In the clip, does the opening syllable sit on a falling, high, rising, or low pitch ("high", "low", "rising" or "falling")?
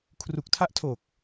low